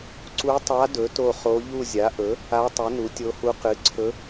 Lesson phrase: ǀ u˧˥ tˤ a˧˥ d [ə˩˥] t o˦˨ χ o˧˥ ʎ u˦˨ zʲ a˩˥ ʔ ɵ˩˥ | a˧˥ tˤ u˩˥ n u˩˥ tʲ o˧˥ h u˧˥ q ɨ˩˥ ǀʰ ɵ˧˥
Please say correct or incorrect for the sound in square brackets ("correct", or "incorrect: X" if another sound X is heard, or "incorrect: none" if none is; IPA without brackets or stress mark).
incorrect: ɵ˩˥